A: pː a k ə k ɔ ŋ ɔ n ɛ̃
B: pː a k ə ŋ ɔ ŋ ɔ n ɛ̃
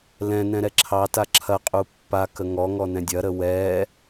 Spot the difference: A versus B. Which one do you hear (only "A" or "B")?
B